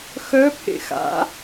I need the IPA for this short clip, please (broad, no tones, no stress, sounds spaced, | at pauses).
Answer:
x œ pʰ ḛ x a̰